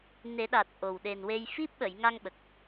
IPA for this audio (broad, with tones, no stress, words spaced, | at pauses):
ne˨˩˦ɗaː˨˩t̚ ʔo˨˩w ɗe˨˩nwe˧j fi˦˥p̚ɓə˨˩˨jŋa˧ŋ ɓə˨˩k̚